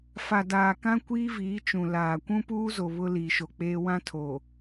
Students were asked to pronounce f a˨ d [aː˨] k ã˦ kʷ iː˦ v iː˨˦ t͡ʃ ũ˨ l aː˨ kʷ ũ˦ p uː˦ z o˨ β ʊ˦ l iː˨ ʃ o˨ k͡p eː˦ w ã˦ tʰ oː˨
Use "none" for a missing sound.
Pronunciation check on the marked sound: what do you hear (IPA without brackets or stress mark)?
aː˨